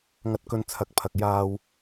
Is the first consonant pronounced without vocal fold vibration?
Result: no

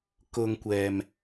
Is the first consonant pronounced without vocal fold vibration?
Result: yes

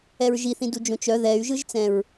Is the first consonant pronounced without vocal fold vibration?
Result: no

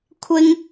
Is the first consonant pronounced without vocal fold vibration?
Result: yes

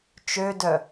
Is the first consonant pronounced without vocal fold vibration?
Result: yes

